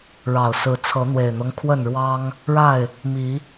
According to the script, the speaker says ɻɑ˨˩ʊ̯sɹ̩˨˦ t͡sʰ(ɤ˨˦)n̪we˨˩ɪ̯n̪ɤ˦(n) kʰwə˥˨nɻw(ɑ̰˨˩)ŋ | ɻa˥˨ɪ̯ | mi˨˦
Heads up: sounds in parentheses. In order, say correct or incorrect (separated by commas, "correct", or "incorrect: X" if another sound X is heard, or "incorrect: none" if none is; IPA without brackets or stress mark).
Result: correct, incorrect: ŋ, incorrect: ɑ˦